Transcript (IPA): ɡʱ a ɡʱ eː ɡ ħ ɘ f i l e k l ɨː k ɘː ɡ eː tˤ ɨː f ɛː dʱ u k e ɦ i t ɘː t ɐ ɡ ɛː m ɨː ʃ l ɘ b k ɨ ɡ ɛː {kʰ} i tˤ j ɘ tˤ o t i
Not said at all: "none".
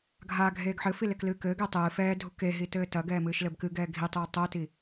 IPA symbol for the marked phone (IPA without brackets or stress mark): ɡʱ